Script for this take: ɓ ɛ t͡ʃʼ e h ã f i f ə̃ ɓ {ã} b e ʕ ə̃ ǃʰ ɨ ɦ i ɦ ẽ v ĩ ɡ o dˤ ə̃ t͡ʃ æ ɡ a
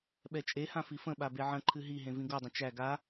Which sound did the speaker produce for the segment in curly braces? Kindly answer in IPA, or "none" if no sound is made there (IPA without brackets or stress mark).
a